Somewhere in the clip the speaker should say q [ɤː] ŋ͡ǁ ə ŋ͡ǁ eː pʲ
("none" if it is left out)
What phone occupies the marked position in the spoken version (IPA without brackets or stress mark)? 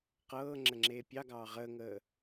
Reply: ɤː